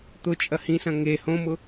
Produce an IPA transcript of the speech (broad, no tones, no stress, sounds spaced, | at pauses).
t̪ ʊ t͡ʃʼ ɐ h ĩ s ɐ̃ ŋ e h õ m ʊ